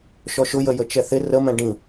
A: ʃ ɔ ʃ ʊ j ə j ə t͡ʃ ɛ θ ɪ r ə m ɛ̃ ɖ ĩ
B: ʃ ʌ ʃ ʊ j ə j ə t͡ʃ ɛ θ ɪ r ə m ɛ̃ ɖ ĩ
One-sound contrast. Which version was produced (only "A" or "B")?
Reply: A